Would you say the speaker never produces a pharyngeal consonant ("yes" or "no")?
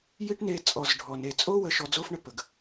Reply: yes